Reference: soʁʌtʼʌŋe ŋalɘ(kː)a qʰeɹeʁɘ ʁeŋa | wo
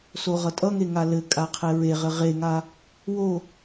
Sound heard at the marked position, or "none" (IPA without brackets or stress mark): kʼ